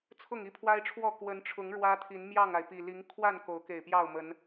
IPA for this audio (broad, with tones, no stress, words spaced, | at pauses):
t͡sʰʊ˥˨ŋi˦pʰwa˦ɪ̯ʈ͡ʂʰwɔ˥˨ kwə˨˦nʈ͡ʂʰʊ˨˦ŋ ɻwä˦t̪ʰi˨˦n mjɑ˥˨ŋa˩ɪ̯pi˨˩ li˨˦ŋkʰwa˥˨n ko˨˦ʊ̯ke˨˩ɪ̯ pjɑ˥˨ʊ̯mə˨˦n